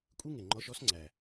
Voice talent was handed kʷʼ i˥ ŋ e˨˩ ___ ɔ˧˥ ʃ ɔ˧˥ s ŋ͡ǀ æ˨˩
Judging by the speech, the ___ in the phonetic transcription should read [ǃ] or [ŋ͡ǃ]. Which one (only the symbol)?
ŋ͡ǃ